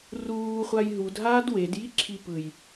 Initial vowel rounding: rounded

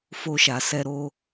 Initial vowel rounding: rounded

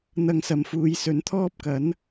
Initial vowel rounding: unrounded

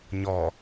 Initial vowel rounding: rounded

